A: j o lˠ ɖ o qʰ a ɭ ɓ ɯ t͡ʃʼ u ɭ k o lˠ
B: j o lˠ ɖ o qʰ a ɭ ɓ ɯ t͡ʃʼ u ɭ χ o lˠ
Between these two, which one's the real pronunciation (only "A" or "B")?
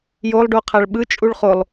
B